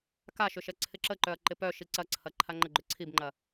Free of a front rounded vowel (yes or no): no